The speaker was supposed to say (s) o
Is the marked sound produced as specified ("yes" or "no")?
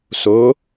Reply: yes